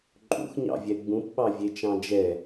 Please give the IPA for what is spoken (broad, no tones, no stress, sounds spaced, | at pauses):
ǃʼ ṵ x ɲ ɑ̰ vʲ ɛ ɡ͡b ũ p ɓ ɑ vʲ e t͡ʃ ɑ̃ d͡ʒ ɛ